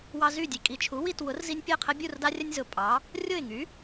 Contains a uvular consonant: yes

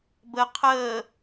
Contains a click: no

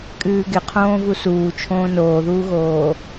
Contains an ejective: yes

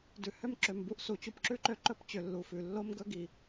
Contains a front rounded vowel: yes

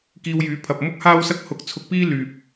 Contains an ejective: no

